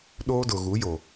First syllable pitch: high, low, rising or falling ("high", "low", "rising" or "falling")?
high